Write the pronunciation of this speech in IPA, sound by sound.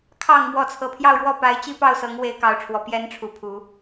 kʰ ɑ˨˩ ŋ m w ɔ˧˥ t͡sʰ ɤ˨˩ pʰ j ɑ˥˧ ʊ̯ ɻ w ɔ˥˩ p a˧˥ ɪ̯ t͡ɕ i˥ p ɑ˥˩ ʊ̯ s ɤ˧˥ ŋ w e˥ ɪ̯ k ɑ˧˥ ʊ̯ ʈ͡ʂʰ w ɔ˨˩ p j ɛ˧˥ n ʈ͡ʂʰ u˧˥ pʰ u˧˥

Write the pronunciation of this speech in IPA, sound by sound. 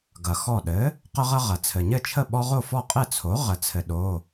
ɡ ɐ˩ x ɔ˧˩ ɗ ɘ˩˥ | q ə˦ ʁ ɐ˦ ʁ ɐ˩ t͡sʰ ɘ˩ ɲ ɘ˥˩ t͡ʃʰ ə˥˩ ɓ ɔ˦ ʁ o˥˩ f ɔ˥˩ qʼ ɘ˥˩ t͡sʰ o˩˥ ʁ ə˩ t͡sʰ ɘ˩ ɗ o˩˧˩

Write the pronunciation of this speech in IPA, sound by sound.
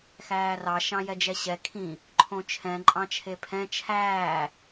x æː r ɑ ʃ ɑ̃ j ɛ d͡ʒ ɛ ɕ ɛ kʰ ĩ | ǃʰ õ t͡ʃʰ ɛ̃ ǃʼ ɑ̃ t͡ʃʰ e pʰ ɛ̃ t͡ʃʰ æː

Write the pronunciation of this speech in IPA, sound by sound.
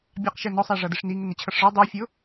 bʲ ɑ q ʃ ɛ n ɔ sˤ æ ʐ ʌ d ɪ ʂ n i ŋ ɪ n ɪ t͡ɕʰ ʌ ʂ ʐ ə˞ dˤ ə˞ fʲ ʊ

